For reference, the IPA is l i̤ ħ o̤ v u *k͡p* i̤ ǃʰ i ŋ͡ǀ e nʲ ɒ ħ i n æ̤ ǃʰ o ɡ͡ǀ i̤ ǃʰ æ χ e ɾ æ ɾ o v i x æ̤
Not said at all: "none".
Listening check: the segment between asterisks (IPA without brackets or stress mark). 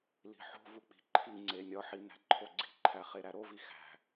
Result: k͡p